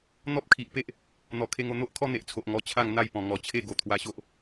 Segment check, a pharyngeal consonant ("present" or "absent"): absent